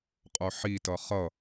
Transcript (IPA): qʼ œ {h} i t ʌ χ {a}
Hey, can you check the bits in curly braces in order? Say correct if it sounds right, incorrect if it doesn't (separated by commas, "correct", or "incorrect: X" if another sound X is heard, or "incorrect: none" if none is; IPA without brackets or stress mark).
incorrect: ħ, incorrect: ʌ